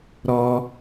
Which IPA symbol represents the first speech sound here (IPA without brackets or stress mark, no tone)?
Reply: ɾ